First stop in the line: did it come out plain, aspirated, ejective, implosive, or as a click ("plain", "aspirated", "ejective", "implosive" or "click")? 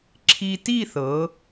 click